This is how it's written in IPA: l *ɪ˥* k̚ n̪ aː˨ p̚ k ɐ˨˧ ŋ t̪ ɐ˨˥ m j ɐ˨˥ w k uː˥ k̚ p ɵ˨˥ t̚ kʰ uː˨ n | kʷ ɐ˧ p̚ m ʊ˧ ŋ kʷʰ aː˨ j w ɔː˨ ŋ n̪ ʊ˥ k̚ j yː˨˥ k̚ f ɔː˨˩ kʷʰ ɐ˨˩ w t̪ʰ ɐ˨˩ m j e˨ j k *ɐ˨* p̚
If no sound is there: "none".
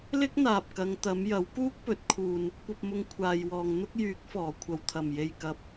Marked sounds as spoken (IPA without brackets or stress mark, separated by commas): ɪ˥, ɐ˨